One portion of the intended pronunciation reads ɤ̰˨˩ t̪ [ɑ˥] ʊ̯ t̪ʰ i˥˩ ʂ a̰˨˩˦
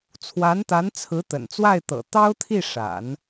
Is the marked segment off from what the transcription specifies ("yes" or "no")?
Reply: no